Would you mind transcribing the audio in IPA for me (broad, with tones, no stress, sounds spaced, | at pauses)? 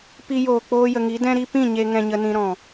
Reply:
p i˧ j oː˨ k͡p oː˧ j ə˨ ŋ i˨˦ d ɛ̃˦ ɾ i˦ p ĩ˦˨ ɲ e˧ ŋ ɛ̃˧ ɲ ə˧ n ĩ˧ ɾ ɔ̃˨